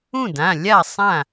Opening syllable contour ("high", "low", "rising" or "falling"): falling